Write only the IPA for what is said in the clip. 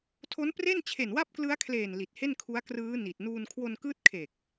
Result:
tʰ o˦˥ n p r e˥˩ n t͡ɕʰ e˨˩ n w a˥˩ p̚ k l ɯ˦˥ a̯ kʰ l eː˨˩ n l i˨˩ t̚ h e˥˩ n kʰ u˦˥ a̯ k r ɯː˦˥ n i˨˩ t̚ n uː˧ n kʰ w o˧ n k ɯː˦˥ t̚ kʰ e˨˩ k̚

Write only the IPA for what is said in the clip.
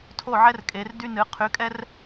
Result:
tʰ o˦˨ ʕ ɛ˦ r kʼ e˨˦ r d y˦ n ɨ˨˦ qʰ y˨˦ kʼ ɛ˦ r

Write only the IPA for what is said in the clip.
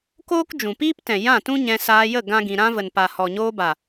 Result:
k oː˦ k d͡ʒ ũ˨ p iː˦ p t ɛ̃˨ j ã˦˨ t ũ˦ ɲ ɛ̃˧ s aː˧ j ə˦˨ ɡ ã˦ ɡ ĩ˧ ɾ ã˧ v ə˨ n p a˨ h ɔ˨ ɲ oː˧ b a˨

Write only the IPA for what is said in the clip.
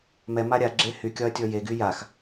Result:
m ɛ m a ɾʲ a ɡ͡ǁ e h y kʲ ɒ ɐ̯ tʲ ɔ j e ɡ y j a x

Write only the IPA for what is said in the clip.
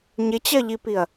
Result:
ɲ ɪ t͡ɕ ɜ ʎ i p i ɐ̯

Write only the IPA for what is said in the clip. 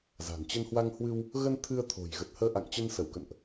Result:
z a̤˨˩ n t͡ɕ ə˧ n h w a˧ ŋ h w ɨ˧ w | ɣ ə˧ n t̪ʰ ɨ˧ ə̯ t̪ʰ o̤˨˩ j ɣ ə˨˩ t̚ h əː˧ ʔ a̰˧˨ ŋ t͡ɕ ə˧ n s ə˧˩ w k ə̰˧˨ n ʔ

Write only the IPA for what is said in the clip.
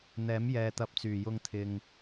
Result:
n̪ ɛː˨˥ m j ɛː˨ t̪ ɐ˨˥ p̚ t͡s yː˨˩ j ʊ˧ ŋ t̪ʰ ɪ˨ ŋ

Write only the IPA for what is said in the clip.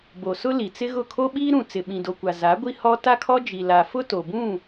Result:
b o˨ s ʊ˦ l i˨ t͡s ɪ˦ ɣ ʊ˦˨ kʰ o˦ ɓ iː˦ ɾ ũ˨ t͡s ɪ˨ ɓ ĩ˨ d o˨ kʷ a˨ z a˨˦ ɡʷ i˦ h ɔ˦ t a˦ kʰ ɔ˦ d͡ʒ i˨ l a˨ f ʊ˦ t o˨ b ũ˦˨

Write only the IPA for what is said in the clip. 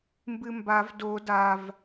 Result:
m b ɨ m b a v d o d a v

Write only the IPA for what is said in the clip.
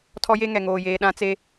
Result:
tʰ ɔ˦ j e˦ ŋ ɛ˨ ŋ oː˨ j eː˨ ɗ ã˦ t͡s e˦

